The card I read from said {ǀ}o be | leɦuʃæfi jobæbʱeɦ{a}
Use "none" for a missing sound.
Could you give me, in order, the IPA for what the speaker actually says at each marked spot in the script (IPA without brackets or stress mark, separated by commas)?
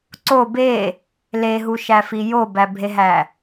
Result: ǀ, æ